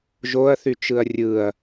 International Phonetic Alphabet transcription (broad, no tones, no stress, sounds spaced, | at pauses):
ʒ o ɐ̯ θ y t͡ʃ ɯ ɐ̯ rʲ ɯ ɐ̯